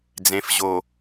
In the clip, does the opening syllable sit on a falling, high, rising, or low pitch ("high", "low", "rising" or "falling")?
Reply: low